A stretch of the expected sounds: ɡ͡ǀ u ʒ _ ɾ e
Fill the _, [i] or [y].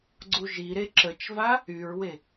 i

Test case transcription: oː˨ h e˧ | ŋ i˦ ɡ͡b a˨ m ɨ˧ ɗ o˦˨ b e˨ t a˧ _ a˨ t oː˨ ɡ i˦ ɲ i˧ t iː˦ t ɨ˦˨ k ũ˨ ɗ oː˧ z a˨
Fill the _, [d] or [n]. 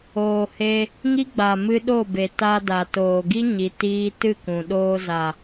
d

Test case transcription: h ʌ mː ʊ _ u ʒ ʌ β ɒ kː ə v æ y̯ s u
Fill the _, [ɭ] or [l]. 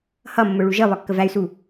ɭ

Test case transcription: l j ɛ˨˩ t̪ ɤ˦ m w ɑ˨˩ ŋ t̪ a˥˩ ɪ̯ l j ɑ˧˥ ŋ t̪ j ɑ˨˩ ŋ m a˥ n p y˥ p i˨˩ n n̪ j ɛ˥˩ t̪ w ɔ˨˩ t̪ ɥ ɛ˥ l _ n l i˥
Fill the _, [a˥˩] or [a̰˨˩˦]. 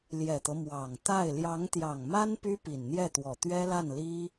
a˥˩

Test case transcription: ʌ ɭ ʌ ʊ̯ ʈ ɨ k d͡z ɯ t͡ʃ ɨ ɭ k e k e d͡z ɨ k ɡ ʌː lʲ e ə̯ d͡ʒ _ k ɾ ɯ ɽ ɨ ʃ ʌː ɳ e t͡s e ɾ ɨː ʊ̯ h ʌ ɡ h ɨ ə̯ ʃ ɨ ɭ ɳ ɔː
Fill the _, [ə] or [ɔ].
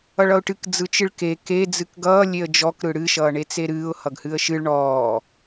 ɔ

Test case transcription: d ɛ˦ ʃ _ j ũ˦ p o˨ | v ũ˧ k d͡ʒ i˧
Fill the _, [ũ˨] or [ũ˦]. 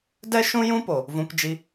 ũ˦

